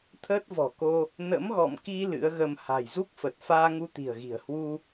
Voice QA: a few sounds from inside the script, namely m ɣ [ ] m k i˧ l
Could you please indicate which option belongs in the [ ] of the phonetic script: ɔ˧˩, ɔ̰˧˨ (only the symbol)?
ɔ̰˧˨